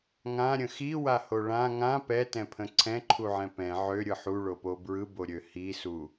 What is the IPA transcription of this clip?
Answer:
ŋ ã ɾʲ ə̃ x i w a h o ɭ ã ŋ ã p ɛ t ɛ̃ pʰ ə̃ ǀʰ ɛ̃ ǃʰ u ʕ ɛ̃ p ɛ̃ ʕ ø ɾʲ ɯ ħ u ɭ o p o b ɹ ɯ b o ɾʲ ø h i s u

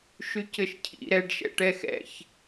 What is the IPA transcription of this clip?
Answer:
ʃ y c ɘ ʃ cʰ ḭ ɾ ɛ ɖ ʃ ɛ̰ ʈ ɛ x ɛ̰ ç

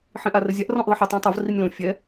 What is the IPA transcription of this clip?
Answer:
ħ ĩ ʔ a r ɘ zʲ a ʔ r ɔ̃ ʔ ðˤ ɨ ħ ɨ tˤ ã tˤ o v r i nʲ l õ fʲ ɛ

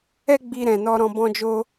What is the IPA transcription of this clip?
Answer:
ɛ˦ ɡ͡b i˧ ɾ ɛ̃˨ n ɔ˧ ɾ ɔ̃˦ b ɔ̃˦ d͡ʒ o˦

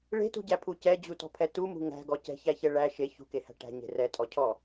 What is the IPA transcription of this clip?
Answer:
ɭ e̤ t ṳ ɟ æ pʰ u c ɛ d͡ʑ u t ɔ̤ pʰ ɛ t u m ṳ ŋ æ̤ ɡ ɔ c ɛ̤ ç æ ç ɛ ɭ æ ʃ e ç ṳ k e h æ̤ ʈ æ̤ ɲ e̤ r ɛ tʼ ɔ cʰ ɔ

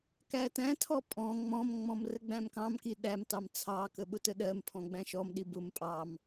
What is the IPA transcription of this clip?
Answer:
k æ t æ̃ tʰ ɔ pʼ ɔ̃ ŋ͡m ɔ̃ m ŋ͡m ɔ̃ m r ə ɡ͡b æ̃ m k ɑ̃ m k i ɗ æ m t ɑ m t͡sʰ ɑ k ə ɓ ʊ t ə ɗ ɜ m pʰ ɔ̃ ɡ͡b æ̃ ʃ ɔ m ɗ i b ʊ m pʼ ɑ m

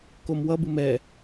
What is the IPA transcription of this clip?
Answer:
k o m w ʌ b ɯ m ɛ

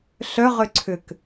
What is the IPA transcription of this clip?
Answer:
ɬ œ ʁ ʏ ǀʰ ʏ k

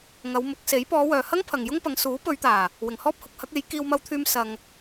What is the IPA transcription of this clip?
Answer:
ŋ ɐ˨˧ w m ʊ˨˥ k̚ s e˨˥ j p ɔː˨˧ w œː˨ h ɐ˥ ŋ pʰ ɐ˨ ŋ j ʊ˥ ŋ p ɐ˨˧ ŋ s uː˨˥ p ɵ˨˧ ɥ t̪ aː˨˩ | w ɪ˨ ŋ h ɔː˥ p̚ h ʊ˨˥ k̚ h ɐ˨˥ k̚ e˨˧ j k iː˧ w m ɐ˧ w t̪ʰ yː˧ m s ɐ˧ ŋ

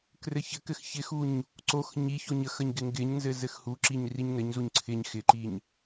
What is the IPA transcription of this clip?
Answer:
k r ɘ ç ɘ k ɘ x ç ɪ x u ɲ | ǀ o x ɲ i ç o ɲ ə x ə ɲ ɡ ɪ ŋ ɡ ɪ ɲ n z ɘ z ɘ x h u ǁ i ɲ r i ɲ n ɘ ɲ z u ɲ ǀʰ ɪ ɲ x ɪ ǃ i ɲ

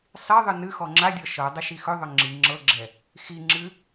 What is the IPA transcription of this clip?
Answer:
sˤ i ðˤ ɨ n ɨ x ɔ ŋ͡ǁ a dʲ ɔ ʃ ɤ dˤ ɨ ʃ i x ɵ ðˤ ɵ ŋ͡ǁ i ŋ͡ǁ ɤ ɡ͡ǁ ɛ | x i ŋ͡ǁ ɨ

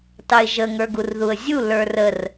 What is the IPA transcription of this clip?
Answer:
t ɑ ɪ̯ ʒ ə ŋ ə˞ ɡ u r ð u ə̯ zʲ u l ə˞ r ə r

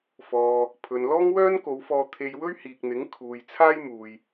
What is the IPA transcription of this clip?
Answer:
f ɔː˨ | pʰ ɵ˨ n l ɔː˥ ŋ w œː˥ n k o˨˧ w f ɔː˧ t̪ʰ e˧ j w ɵ˥ ɥ h iː˨ k̚ n̪ ɪ˨˥ ŋ kʰ uː˨ j t͡sʰ aː˥ j m uː˨ j

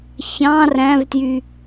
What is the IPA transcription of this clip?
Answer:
ç ɑ̃ r æ̃ v t j y

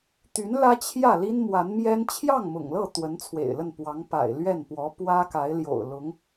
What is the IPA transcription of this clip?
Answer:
t̪ y˧˥ n l ä˥ t͡ɕʰ j ä˥˩ l i˥ n m w a˧˥ n m j ɛ˥ n t͡ɕʰ j ɑ˥˩ ŋ m ʊ̰˨˩ ŋ l ɤ˥˩ t̪ w ə˧˥ n t͡sʰ w ḛ˨˩ ɪ̯ l ə˥˩ n p w ɑ˧˥ ŋ p a̰˨˩ ɪ̯ l ɥ ɛ˥˩ n p w ɔ˧˥ p w ä˥ k a˧˥ ɪ̯ l j o̰˨˩ ʊ̯ l ʊ˧˥ ŋ

